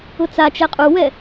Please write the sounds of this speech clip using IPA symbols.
ʊ t͡s a t͡ʃ ɛ qʼ u w ɛ

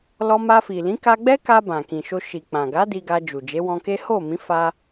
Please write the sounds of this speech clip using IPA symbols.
l ɔ˧ m a˧ f i˨ l ĩ˨˦ k a˧ ɡ͡b ɛ˦ k a˧ b ã˨ k ĩ˨ ʃ o˧ ʃ i˨ k͡p ã˨ ɡ a˨˦ d i˧ ɡ a˧ d͡ʒ u˨ d͡ʒ e˨˦ w ɔ̃˧ k e˦ h o˦˨ m ĩ˨˦ f a˧

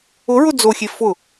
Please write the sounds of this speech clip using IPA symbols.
ʊ ɹ ʊ d͡z o xʲ e f ʊ

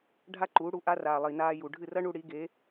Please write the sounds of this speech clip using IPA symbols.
ɖʱ a˥ ǃ uː˩˥ ɽ u˧ ʔ a˥ r aː˩ lˠ i˩ n aː˧ j u˩ ɖʱ ɨ˥˩ r ɐ˥ ɳ u˧ ɽ i˩˥ ɡ e˩˥

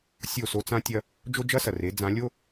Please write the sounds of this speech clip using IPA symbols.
sʲ o˦˨ s o˦ t͡s ã˦ tʲ ɐ˦ | d͡ʒ o˦ d͡ʒ ɐ˦ s ɐ˨ r e˨˦ d͡z ã˨˦ lʲ o˦

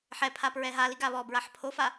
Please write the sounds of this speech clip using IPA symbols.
ħ ɛ pʰ a p ɹ ɛ ɦ a l i ɡ a β ɔ b ɹ a ħ pʰ o f a

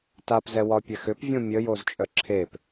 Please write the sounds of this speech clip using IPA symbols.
t a p z ɛ w ɒ pʲ ɛ x ʏ p vʲ õ mʲ ə j o z t͡ʃʼ œ ǁʰ e p

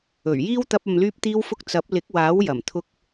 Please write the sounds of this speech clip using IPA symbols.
ɵ˨˩ ɥ j iː˥ w t̪ ɐ˧ p̚ ɐ˨ m l yː˧ p̚ t̪ iː˧ w f ʊ˧ k̚ t͡s ɐ˨˥ p̚ l ɪ˨˥ k̚ w aː˨˥ w j ɐ˨˩ m t̪ʰ ʊ˧ k̚

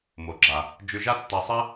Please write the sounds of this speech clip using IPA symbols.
m o˩ ɡ͡ǁ a˩ | d͡ʒ ʉ˧ ʒ a˥ tː a˧ sˤ ɛ˥

